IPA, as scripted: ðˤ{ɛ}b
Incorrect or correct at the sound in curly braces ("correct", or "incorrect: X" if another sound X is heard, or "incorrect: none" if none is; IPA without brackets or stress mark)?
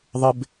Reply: incorrect: ɪ